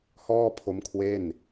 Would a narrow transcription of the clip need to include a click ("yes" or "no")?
no